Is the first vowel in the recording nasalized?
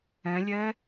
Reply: yes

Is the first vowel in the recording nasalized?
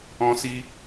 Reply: yes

